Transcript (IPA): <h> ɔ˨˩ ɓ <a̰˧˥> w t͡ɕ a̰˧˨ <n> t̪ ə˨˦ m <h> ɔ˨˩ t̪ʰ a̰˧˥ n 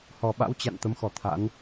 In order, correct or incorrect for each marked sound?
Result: correct, correct, correct, incorrect: x

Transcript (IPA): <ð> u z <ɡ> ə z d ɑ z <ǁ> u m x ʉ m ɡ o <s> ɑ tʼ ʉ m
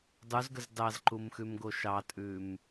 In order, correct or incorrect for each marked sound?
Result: incorrect: dˤ, correct, incorrect: ǃ, incorrect: ʃ

